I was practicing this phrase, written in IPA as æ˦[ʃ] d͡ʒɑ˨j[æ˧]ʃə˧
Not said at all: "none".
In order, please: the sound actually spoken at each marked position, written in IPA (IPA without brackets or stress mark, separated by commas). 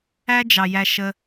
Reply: none, æ˧